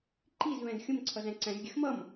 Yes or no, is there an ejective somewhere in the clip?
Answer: no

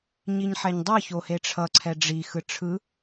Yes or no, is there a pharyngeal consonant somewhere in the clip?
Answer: yes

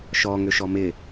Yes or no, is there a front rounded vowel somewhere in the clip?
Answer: yes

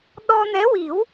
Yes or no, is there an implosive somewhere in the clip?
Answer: yes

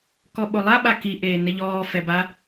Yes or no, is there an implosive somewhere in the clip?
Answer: yes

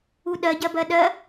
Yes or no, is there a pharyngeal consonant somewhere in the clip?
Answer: no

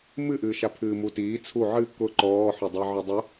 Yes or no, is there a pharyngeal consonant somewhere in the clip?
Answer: yes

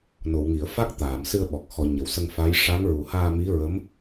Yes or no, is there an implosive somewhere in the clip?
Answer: yes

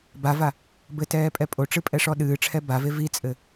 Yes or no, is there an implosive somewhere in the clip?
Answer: yes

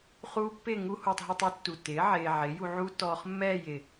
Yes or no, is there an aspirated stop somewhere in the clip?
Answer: no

